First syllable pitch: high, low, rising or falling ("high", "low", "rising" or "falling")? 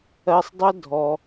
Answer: high